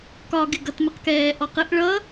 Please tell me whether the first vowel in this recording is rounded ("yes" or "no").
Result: yes